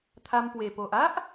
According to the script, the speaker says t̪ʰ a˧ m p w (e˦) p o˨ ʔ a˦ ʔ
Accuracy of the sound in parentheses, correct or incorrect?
incorrect